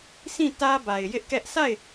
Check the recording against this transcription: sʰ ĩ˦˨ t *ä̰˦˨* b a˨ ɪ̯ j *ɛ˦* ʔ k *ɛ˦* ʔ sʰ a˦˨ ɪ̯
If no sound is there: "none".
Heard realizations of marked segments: ä˦, ɪ˦, ɛ˦

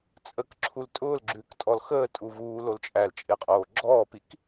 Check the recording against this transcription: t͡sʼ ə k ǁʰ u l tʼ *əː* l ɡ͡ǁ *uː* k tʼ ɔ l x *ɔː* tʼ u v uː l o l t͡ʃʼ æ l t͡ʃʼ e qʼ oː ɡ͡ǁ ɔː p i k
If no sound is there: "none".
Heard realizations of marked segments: ʊː, ʉː, əː

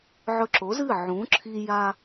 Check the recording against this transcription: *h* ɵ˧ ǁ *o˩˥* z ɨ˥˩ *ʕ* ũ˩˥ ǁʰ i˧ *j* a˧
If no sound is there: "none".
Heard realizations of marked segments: ʕ, o˩˥, ʕ, j

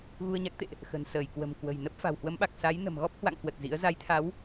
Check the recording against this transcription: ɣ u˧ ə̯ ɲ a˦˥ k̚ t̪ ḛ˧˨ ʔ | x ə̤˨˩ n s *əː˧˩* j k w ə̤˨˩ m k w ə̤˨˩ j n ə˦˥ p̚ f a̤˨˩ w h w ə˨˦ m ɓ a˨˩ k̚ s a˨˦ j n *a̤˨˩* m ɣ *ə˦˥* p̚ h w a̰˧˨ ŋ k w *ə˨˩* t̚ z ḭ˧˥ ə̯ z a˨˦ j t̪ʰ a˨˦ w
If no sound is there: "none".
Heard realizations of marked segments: əː˧˩, ə̤˨˩, ɔ˦˥, ə˨˩

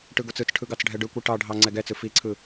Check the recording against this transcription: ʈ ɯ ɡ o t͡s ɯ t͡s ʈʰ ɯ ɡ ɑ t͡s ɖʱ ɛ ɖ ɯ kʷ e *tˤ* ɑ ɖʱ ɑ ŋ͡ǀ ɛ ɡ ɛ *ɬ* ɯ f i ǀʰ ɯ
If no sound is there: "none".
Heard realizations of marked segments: ʈ, t͡s

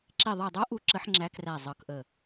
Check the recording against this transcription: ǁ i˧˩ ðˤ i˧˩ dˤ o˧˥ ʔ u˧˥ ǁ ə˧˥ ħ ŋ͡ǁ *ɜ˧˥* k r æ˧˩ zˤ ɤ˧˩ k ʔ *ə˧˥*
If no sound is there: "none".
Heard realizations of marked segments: æ˧˥, ə˧˩

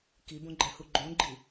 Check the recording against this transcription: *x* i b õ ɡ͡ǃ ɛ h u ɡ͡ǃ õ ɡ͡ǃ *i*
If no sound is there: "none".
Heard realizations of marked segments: k, i

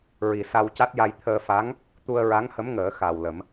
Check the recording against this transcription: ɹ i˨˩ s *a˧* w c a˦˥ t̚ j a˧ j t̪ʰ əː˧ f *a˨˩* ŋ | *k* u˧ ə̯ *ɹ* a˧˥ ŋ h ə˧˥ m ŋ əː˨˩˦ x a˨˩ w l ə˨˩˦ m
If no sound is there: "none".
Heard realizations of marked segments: a˧, a˧˥, t̪, ɹ

